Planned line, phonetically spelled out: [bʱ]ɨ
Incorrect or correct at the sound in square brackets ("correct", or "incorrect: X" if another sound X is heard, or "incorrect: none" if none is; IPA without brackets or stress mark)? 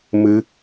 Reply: incorrect: m